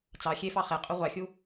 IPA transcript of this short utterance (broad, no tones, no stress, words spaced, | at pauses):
t͡sɑ xʲefɑ χe qʼuʁʷɑxʲu